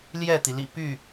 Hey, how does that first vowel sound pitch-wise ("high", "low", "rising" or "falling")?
falling